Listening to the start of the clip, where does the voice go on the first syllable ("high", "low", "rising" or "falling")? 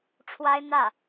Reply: high